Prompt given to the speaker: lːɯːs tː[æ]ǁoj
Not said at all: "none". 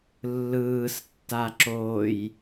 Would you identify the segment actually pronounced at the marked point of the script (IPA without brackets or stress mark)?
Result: a